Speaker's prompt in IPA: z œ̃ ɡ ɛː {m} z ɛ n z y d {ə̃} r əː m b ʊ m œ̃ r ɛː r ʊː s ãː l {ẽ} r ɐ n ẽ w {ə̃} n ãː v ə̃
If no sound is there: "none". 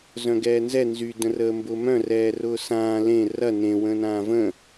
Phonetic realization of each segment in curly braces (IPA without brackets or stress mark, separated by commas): n, ə̃, ẽ, ə̃